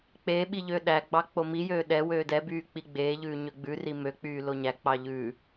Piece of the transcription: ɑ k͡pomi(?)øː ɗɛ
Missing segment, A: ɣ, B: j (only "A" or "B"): B